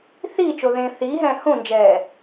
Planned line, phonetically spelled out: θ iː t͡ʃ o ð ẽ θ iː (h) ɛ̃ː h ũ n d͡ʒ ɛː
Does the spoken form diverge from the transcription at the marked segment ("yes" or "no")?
yes